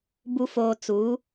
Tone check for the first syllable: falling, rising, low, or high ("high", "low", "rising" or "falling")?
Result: low